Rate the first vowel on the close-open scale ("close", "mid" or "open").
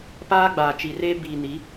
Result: open